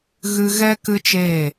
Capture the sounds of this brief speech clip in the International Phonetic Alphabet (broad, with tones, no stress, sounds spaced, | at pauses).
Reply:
ɣ ɨ˧ ɣ ɛ˦ k ɨ˧ t͡ʃ eː˦˨